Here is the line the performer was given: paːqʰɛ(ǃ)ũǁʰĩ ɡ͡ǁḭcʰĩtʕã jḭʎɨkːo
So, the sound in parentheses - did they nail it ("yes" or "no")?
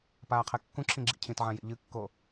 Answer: no